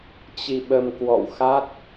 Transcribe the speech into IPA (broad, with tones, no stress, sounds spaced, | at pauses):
t͡ɕ i˧ ɓ ə˧ m k w ɔ̰˧˨ w x a˦˥ t̚